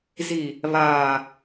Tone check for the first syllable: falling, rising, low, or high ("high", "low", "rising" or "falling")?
low